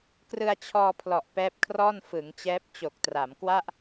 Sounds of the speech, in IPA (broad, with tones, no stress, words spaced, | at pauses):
krɯ˧a̯t͡ɕʰɔː˧pʰlɔ˨˩ʔ pɛː˦˥p̚kʰrɔː˥˩n fɯ˩˦ŋt͡ɕɛː˦˥p̚ t͡ɕo˨˩k̚tra˩˦mkwa˥˩ʔ